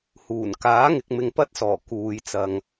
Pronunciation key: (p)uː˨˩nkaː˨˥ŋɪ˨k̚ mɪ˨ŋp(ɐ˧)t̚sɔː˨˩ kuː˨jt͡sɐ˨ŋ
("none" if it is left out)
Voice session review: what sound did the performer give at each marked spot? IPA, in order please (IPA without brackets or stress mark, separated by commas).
h, ɐ˧